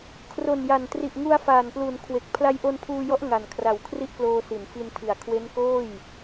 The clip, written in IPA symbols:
kʰ r o˨˩ n j a˨˩ n t r i˨˩ ʔ ŋ u˧ a̯ f aː˨˩ n p l u˨˩ n kʰ w e˨˩ k̚ pʰ l a˧ j ʔ o˧ n pʰ uː˧ j ɔ˦˥ ʔ ŋ a˨˩ n kʰ r a˨˩ w kʰ r i˦˥ ʔ k l oː˧ s i˩˦ n f i˧ n tʰ i˨˩ a̯ kʰ w e˦˥ n k oː˥˩ j

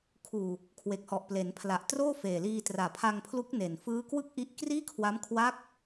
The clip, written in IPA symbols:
kʰ uː˨˩ | kʰ w e˨˩ k̚ h ɔ˨˩ ʔ p l e˩˦ n pʰ l a˨˩ ʔ t r oː˥˩ f eː˨˩ l iː˧ t r aː˨˩ pʰ a˧ ŋ pʰ l u˦˥ k̚ n e˨˩ n f ɯː˦˥ k w ɯ˥˩ k̚ ʔ i˦˥ ʔ k r iː˥˩ kʰ w a˦˥ m kʰ w a˦˥ k̚

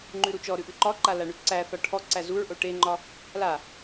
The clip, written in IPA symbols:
ŋ͡ǃ ʉ ɾ u t͡ʃ ɔ ɾ ʉ ʔ ʉ ǃ ɒ ǃ a l a ɳ ʉ ǀ æ θ ɒ ʈʰ ɔ ǀ æ z u ɹ ʔ o ʈ e ŋ͡ǃ ɒ | l a

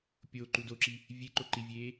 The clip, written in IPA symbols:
pʲ o ǃ u d o ǁ i | vʲ e ǃ o ǃ i vʲ eː

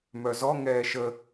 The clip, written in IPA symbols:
m œ z ɔ ŋ ɛː ʃ ə

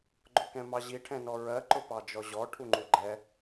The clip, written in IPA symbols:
ɡ͡ǃ ʊ k ɛ̃ m ɑ ʑ i ʈʰ ɛ̃ n ɔ ɹ ɜ ǃ ʊ p ɑ d͡ʒ ɔ ʑ ɔ ʈʰ u ŋ͡ǃ u ɡ͡ǃ ɛ

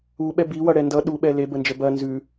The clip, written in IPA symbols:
u ɓ ɛ b i w ʌ ɽ ɛ n d ʌ ɗ u ɓ ɛ l e b ə n d͡ʒ ə b ɐ n z ʉ

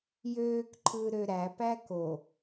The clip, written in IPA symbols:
j øː k ǃʰ ɯː ɾ ø ɾ æ p æ k o

